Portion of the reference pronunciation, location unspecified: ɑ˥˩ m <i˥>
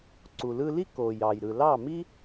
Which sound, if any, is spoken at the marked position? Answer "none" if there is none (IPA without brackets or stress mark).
i˥